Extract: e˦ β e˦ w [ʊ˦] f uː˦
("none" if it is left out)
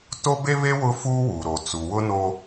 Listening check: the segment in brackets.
ʊ˦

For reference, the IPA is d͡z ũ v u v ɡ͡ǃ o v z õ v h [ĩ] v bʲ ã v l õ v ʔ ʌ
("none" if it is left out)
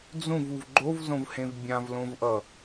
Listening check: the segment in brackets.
ẽ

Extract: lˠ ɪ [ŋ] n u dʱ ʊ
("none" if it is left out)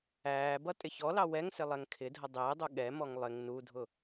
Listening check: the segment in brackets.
ŋ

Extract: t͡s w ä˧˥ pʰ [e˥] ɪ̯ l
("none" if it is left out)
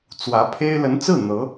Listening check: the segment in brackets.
e˥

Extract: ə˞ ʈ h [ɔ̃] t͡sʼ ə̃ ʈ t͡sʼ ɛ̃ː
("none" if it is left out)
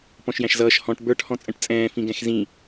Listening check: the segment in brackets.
ɔ̃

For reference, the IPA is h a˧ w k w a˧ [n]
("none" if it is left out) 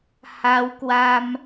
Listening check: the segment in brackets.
m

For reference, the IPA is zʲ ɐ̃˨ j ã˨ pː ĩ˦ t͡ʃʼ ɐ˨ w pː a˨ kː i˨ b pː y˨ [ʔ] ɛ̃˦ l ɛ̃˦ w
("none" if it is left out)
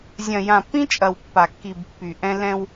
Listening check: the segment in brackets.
ʔ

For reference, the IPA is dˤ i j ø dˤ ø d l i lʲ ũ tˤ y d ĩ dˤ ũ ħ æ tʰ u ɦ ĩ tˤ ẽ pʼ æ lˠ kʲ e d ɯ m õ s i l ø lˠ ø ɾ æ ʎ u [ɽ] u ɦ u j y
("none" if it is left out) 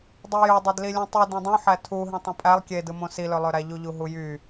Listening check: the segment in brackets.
ʎ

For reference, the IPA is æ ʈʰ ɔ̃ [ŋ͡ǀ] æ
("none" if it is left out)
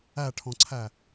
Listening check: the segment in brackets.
ǀʰ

